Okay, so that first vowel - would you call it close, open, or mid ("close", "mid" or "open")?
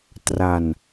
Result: open